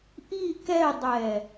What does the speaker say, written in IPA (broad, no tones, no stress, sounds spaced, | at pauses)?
ʔ i k ɛ dˤ ɛ